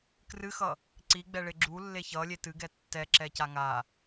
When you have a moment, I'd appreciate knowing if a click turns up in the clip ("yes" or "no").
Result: yes